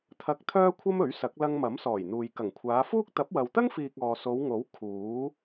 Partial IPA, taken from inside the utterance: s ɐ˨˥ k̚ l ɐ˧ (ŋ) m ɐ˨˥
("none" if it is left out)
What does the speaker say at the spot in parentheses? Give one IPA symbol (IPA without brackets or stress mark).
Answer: ŋ